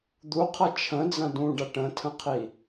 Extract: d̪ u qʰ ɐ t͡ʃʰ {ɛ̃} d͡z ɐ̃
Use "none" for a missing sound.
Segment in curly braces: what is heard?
ə̃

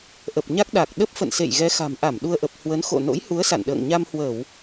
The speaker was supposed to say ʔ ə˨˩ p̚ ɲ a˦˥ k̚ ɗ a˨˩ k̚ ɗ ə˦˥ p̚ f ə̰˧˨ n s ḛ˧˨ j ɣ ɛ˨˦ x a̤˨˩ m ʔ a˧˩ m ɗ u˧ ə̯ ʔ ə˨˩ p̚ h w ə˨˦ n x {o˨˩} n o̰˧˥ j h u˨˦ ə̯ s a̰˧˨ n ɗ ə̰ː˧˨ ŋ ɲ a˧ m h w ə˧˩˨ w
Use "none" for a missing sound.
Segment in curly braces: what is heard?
o̰˧˨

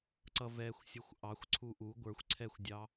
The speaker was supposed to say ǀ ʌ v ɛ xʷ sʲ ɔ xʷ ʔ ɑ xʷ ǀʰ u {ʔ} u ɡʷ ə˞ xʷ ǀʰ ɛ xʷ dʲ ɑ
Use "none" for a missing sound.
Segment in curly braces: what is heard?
ʔ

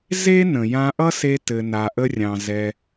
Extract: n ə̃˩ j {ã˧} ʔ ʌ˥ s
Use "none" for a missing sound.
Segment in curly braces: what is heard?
ã˧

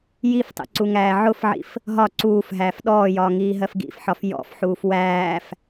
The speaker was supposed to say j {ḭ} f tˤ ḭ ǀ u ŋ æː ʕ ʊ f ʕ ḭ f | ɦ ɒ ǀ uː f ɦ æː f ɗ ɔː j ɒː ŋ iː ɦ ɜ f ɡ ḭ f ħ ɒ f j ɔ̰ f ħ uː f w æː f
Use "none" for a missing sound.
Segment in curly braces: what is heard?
i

